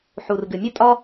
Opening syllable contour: low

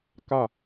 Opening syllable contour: falling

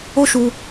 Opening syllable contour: high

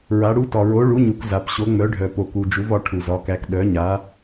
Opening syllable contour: rising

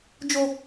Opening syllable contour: high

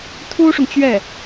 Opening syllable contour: high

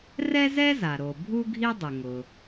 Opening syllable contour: high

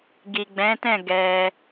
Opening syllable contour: low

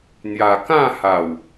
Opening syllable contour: low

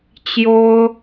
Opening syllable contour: high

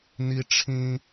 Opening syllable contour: high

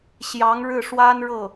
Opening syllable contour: rising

